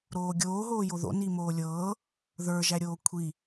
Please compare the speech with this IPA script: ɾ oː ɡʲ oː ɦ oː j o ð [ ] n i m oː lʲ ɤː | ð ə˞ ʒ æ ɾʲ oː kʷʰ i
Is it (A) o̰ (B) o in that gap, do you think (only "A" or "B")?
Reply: A